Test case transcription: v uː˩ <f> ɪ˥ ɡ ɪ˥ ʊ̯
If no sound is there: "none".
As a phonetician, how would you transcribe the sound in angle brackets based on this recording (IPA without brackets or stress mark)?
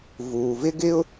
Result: v